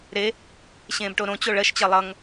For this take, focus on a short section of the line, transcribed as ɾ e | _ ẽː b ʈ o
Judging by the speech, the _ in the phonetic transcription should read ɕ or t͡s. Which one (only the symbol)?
ɕ